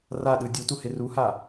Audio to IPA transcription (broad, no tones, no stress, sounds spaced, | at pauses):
r a ɗ ɯ dʲ u t u h e r u h a